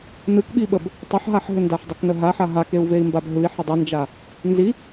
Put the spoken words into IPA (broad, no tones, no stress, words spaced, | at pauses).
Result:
nɯkɓiɓəb | tˤəħɦaħɦʏndaħ dˤʏknə ɦaħa ɦakeu̯vei̯mbab ɦɯi̯ħʏ dˤɯnd͡ʒa | nzi